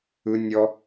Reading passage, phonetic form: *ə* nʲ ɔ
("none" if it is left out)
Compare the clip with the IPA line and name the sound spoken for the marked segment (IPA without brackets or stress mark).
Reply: ɯ